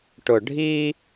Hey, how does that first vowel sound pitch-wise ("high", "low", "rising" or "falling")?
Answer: low